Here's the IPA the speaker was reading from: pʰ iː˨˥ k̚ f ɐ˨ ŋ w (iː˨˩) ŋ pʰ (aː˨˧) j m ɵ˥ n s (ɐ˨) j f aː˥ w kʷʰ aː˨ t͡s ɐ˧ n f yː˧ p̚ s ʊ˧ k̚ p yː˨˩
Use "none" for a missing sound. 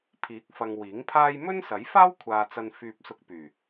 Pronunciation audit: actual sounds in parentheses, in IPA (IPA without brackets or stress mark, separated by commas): iː˨˥, aː˥, ɐ˨˥